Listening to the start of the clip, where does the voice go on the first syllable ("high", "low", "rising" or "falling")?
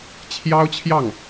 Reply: high